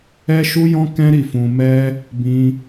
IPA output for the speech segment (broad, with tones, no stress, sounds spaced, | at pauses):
ɛ˦ ʃ u˦ j ɔ̃˦ k ɛ̃˦ ɾ i˦˨ f ũ˧ m ɛ˦ | b ĩ˦